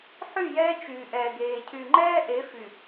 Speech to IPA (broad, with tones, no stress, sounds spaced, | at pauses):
ħ y˦˨ j ɛː˦ t͡ʃ yː˨ ʔ ɛː˨ ɡ eː˨ cʰ y˨ ŋ͡ǃ ɛː˦ ʔ e˨˦ f y˨